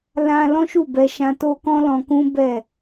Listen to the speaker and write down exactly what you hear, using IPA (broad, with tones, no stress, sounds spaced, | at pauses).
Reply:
l ã˧ l ɔ̃˦ ʃ u˦˨ b ɛ˧ ʃ ã˧ t o˦ k ɔ̃˦ l ɔ̃˧ k ũ˦ b ɛ˦˨